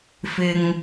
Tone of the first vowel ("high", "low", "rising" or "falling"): low